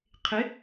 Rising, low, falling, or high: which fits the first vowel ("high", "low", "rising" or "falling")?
rising